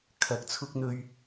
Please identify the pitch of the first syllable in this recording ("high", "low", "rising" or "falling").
rising